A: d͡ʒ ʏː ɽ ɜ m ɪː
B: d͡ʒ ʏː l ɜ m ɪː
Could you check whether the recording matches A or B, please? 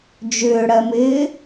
A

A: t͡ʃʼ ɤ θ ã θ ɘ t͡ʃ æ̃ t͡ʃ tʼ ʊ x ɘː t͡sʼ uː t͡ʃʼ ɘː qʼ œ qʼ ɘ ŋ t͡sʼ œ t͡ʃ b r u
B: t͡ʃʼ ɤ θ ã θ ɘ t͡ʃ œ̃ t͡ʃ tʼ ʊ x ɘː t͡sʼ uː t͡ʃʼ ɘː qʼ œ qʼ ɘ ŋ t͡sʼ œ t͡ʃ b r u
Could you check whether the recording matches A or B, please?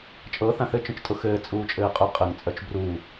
B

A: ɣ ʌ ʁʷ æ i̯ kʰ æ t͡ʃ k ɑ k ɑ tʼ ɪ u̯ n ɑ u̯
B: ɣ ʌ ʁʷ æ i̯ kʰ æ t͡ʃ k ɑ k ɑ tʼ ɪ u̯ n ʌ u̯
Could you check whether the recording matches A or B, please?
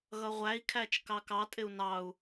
A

